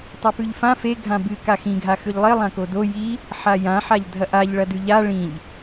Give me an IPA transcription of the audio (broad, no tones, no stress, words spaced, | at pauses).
tˤepʉʎfã fe ɡʱãbɨ kaxĩ ɡʱaxʉʎlˠe lˠãkodo ji | ħajã ħaʎdʱɐʔaʎ ɭɐdʉʎa ɭĩʎ